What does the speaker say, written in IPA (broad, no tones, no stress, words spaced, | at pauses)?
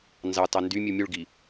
nzɑtɑ ndymʲu mʲuɭɡi